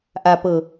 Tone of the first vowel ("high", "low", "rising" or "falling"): low